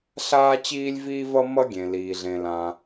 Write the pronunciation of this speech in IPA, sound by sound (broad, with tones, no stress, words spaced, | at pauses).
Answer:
ɬaː˥t͡ɕiː˥lʲviː˥ vʌ˥ mʌ˥ɡʲẽ˩liː˩ ɮẽ˩lã˩